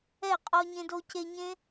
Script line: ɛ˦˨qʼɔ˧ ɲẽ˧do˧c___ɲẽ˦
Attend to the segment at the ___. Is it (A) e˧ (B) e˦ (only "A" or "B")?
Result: A